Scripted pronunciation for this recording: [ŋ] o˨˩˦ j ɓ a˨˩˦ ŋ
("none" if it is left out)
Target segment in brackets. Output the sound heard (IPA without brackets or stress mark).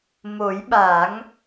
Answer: m